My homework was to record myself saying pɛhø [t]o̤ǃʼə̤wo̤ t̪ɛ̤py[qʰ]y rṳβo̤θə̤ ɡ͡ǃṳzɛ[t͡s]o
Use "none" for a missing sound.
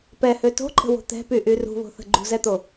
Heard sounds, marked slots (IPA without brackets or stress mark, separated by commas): t, ʔ, t̪